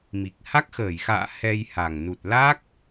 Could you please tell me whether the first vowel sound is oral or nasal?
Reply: oral